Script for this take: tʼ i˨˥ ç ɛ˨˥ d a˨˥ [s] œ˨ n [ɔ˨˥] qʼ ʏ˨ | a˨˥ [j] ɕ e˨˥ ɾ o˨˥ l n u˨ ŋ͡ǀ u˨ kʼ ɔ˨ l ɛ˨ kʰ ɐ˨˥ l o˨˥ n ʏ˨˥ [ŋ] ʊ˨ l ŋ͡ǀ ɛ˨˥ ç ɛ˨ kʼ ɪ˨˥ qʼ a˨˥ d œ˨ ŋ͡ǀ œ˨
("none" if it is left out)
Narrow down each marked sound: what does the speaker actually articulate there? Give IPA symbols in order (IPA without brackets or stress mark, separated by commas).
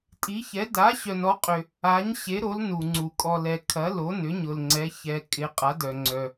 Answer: ɕ, ɔ˨˥, ɲ, ɲ